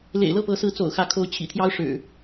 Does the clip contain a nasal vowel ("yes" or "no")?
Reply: no